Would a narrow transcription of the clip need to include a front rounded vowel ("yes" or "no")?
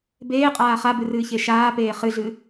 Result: no